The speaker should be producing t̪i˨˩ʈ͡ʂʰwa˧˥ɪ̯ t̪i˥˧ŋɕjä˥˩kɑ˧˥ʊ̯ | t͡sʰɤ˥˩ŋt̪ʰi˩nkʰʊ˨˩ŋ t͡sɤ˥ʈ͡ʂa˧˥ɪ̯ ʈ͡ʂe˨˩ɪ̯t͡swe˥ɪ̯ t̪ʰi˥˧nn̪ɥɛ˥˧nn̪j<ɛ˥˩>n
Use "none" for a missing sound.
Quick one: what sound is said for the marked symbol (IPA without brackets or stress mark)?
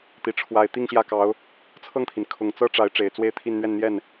ɛ˥˩